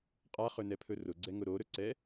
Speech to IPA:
qʼaχɵnɛpʰɵ rʊɡ͡ǀɛŋʊ ɾoɾɵǀɛ

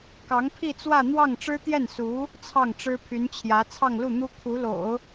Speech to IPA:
kɑ˧˥ŋpʰi˥˧t͡swä˥˧ n̪wɑ˥˩ŋ ʈ͡ʂɻ̩˥t̪jɛ˥˩nsu˧˥ | t͡sʰɑ˥˩ŋʈ͡ʂɻ̩˥pʰy˧˥nt͡ɕʰjä˧˥ t͡sʰɑ˥˧ŋlu˥˩n̪u˥ kʰu˧˥lo̰˨˩˦ʊ̯

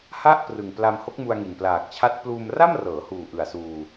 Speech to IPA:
ha˥˩ʔ prɯ˨˩ŋpla˧m ho˦˥k̚mu˧a̯ŋi˨˩n plaː˨˩k̚t͡ɕʰa˦˥t̚ pluː˧mra˥˩mrɤː˩˦huː˨˩ ʔɯ˨˩a̯suː˧

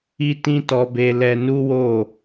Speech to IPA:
i˦tĩ˦tɔ˧be˧ lɛ˧nu˦ wo˦˨

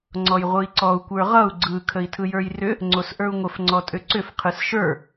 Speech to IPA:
ŋ͡ǀɔjʁʷɯi̯ǀɔu̯ kʷə˞ʁʌu̯ ɡ͡ǀɯ kʰəi̯tʰɯjə˞jrʏ | ŋ͡ǀosʔə˞u̯ŋʷəf ŋ͡ǀɔtʼʏǀʏf qʰɯsʃə˞

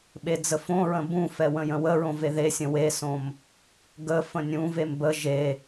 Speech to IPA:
ɓed͡zəfõɹə̃ bũfɛ wə̃jə̃wəɹõ veðesʲə̃ wesõm | ɡə fə̃nʲũvem bə ʒe

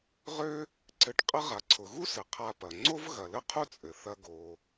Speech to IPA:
ʁø˥ | ǀɘ˧ʈqʼə˥ ʁa˩ǀʰʊ˩ɣu˥sɘ˩ qʰa˧pɐ˩ ŋ͡ǀo˥vɣɐ˩lə˥ qʰu˥t͡sʼɘ˩θɐ˧ ɡo˩

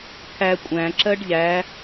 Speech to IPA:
kʰæ kʷʼæ̃ǁɜɖ ʎæ

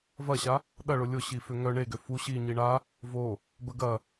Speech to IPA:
vɐɕa | ɗɐɭʊ lʲʊɕi fʏŋœ ɳeɡø fu ɕi ɲiɳa | vo | bəɡɐ

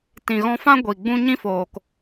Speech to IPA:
tĩ˨ɣɔ̃˧fã˦ ɡʷi˨ɡ͡bũ˦ ɲĩ˦foː˨k

